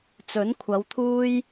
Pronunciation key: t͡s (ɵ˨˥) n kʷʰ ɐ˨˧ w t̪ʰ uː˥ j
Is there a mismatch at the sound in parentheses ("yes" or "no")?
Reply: no